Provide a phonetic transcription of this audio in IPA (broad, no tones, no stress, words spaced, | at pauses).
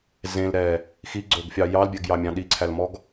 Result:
zẽlɾɛ | xiɡ͡ǀɵɡfʲɑ jɑlbʲɛɡjɑmʲɑ̃ ɗiǀʰælmɔɡ